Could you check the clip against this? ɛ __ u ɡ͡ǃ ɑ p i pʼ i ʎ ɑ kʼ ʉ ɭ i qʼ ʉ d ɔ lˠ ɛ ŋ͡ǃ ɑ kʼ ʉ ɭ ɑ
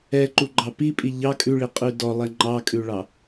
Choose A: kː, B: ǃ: B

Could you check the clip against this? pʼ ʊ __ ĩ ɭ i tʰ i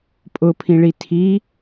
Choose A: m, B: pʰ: B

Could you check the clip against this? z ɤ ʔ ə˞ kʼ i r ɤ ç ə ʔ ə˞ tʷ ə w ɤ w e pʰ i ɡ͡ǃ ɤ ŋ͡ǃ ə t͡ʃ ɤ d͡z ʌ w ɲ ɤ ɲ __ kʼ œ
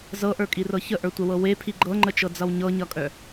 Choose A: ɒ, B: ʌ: B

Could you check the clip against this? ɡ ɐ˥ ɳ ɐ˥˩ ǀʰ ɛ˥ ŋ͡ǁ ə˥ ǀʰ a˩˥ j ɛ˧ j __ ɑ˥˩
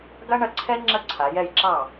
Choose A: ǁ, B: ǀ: A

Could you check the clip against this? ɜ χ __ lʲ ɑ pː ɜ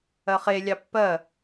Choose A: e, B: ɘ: A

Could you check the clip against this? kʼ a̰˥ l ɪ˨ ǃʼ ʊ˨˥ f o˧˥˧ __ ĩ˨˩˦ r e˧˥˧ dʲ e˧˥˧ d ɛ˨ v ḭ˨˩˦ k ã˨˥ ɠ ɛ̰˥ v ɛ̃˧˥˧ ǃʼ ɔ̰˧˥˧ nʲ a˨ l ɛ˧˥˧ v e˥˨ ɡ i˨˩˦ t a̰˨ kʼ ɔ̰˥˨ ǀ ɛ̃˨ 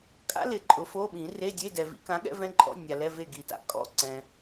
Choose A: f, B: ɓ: B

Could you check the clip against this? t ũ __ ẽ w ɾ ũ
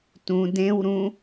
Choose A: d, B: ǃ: A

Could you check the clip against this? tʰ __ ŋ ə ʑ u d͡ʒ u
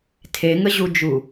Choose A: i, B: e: B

